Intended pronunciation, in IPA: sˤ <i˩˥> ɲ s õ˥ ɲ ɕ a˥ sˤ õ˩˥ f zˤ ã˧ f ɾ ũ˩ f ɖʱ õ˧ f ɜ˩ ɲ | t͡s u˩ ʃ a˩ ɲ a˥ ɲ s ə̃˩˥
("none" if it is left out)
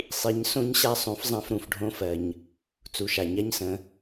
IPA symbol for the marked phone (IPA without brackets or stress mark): i˩˥